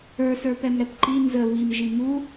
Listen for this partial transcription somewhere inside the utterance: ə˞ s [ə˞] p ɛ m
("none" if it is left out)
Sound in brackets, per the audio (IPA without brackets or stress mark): ə˞